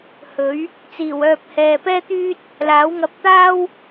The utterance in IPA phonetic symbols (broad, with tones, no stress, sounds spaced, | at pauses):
h ɵ˨˥ ɥ | t͡s iː˨˩ w œː˨ p̚ h ɛː˨ p ɛː˥ t̪ yː˥ t̚ | l aː˨˥ w ŋ ɐ˧ p̚ t̪ aː˥ w